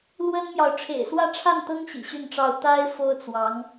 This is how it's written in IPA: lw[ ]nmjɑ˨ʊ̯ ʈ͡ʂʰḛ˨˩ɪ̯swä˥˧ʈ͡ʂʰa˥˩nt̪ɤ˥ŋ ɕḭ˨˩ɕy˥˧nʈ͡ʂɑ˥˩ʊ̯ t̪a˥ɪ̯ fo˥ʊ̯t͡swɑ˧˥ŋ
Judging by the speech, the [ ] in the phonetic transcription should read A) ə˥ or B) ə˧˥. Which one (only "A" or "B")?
A